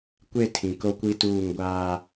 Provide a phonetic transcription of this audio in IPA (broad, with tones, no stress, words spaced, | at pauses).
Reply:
kʷe˦˨ tʰĩ˨ ko˦kʷi˦tuː˦˨ŋ ɡʷaː˦